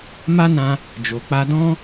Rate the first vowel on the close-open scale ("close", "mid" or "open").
open